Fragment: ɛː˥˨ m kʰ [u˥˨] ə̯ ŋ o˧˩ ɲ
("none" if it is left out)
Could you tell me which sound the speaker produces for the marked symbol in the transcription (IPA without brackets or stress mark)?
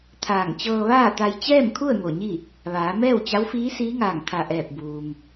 u˥˨